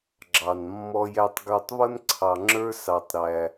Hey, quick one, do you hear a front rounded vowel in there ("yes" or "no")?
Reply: no